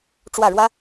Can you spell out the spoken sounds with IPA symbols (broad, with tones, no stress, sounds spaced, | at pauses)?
ʈ͡ʂ w ä˥˩ ɻ w ä˥